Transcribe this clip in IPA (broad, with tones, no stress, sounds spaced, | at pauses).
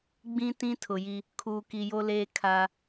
ɡ͡b ĩ˦ t ĩ˦ tʰ ʊ˨ j i˦ | kʰ uː˨ k i˨ j o˦ l eː˦ kʰ a˦